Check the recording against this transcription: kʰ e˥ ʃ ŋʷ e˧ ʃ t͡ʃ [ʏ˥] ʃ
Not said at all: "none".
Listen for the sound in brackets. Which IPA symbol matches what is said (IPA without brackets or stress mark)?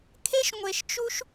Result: u˥